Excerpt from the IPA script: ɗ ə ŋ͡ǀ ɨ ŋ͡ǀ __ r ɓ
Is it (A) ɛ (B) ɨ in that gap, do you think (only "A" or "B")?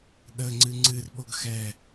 B